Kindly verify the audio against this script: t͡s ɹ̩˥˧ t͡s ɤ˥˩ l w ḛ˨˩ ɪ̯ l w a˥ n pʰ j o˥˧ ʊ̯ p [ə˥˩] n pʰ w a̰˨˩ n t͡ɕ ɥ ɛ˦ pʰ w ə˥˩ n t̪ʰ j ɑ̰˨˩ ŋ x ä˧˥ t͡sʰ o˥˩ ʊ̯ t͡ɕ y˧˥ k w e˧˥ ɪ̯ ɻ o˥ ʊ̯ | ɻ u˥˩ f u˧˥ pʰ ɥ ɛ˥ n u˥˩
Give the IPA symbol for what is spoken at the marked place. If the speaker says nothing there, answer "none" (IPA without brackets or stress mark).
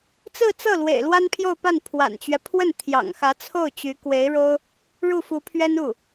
a˥˩